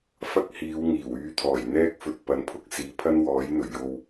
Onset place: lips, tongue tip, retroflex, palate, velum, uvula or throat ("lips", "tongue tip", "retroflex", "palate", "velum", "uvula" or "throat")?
lips